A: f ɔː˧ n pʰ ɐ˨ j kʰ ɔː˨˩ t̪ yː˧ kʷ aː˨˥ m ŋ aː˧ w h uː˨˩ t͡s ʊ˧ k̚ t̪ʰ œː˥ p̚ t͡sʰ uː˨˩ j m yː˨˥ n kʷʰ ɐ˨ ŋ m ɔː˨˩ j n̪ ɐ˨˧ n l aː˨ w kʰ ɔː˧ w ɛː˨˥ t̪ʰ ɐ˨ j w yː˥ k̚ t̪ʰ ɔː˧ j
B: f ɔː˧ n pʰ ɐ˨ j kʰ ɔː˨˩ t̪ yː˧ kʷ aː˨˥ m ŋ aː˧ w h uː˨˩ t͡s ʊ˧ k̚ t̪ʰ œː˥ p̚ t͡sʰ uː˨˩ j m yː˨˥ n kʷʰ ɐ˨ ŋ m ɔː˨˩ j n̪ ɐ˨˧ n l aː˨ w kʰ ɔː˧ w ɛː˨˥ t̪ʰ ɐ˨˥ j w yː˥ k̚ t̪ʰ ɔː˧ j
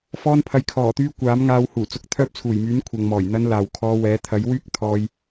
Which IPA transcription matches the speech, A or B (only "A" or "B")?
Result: B